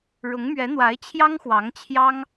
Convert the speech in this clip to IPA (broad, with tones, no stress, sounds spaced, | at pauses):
ɻ ʊ˧˥ ŋ m ɥ ɛ˧˥ n̪ w a˧˥ ɪ̯ t͡ɕʰ j ɑ˥ ŋ x w ɑ˧˥ ŋ t͡ɕʰ j ɑ˥ ŋ